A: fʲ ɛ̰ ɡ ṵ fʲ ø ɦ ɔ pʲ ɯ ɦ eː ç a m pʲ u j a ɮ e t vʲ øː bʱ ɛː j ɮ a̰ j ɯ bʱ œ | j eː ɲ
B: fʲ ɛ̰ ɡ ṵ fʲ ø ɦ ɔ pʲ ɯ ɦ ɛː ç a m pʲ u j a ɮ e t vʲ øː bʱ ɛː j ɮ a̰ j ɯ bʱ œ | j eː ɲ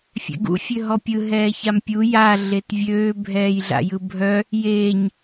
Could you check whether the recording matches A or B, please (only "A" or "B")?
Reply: B